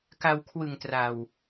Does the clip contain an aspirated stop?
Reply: yes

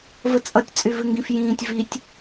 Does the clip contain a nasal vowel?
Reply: yes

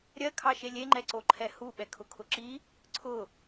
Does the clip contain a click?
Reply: yes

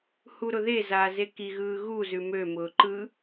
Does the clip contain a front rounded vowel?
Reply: yes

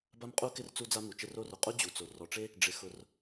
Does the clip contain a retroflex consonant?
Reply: yes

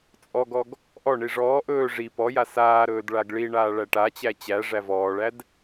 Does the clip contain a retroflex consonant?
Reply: yes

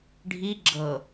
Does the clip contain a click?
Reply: yes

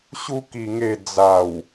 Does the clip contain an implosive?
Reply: no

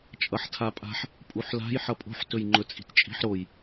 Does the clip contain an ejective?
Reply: yes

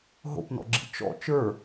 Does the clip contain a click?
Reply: yes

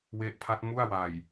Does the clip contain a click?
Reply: no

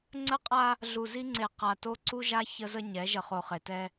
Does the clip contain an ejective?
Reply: yes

